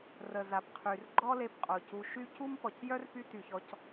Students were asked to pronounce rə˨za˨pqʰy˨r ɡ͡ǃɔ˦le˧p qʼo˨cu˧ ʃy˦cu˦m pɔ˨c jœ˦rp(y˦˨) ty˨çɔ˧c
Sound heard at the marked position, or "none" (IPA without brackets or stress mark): y˧